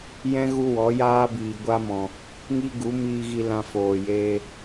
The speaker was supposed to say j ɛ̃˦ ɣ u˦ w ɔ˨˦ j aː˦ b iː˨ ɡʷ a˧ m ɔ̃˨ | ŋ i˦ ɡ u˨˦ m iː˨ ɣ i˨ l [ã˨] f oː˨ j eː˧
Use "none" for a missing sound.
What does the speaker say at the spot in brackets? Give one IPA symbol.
ã˨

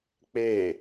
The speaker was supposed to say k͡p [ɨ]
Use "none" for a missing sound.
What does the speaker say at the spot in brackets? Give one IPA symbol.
e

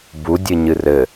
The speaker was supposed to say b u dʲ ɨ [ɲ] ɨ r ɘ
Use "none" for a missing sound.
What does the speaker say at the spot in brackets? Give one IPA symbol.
ɲ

